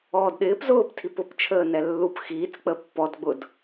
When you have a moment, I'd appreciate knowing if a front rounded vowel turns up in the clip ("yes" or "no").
no